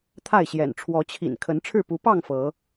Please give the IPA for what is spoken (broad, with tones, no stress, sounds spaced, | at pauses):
t̪ʰ a˥˨ ɪ̯ ɕ j ɛ̰˨˩ n ʈ͡ʂʰ w ɔ˨˦ t͡ɕʰ ḭ˨˩ n kʰ ə˨˦ n ʈ͡ʂʰ ɻ̩˥˨ p u˨˦ p ɑ˥˨ ŋ f ɤ˨˦